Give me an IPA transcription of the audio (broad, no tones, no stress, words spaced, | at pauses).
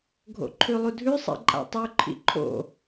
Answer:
ɡʱo̰ǃʰʉlˠudʱʉ sˤḭǃʼa̰tˤʉ ǃʰḭǃʰo̰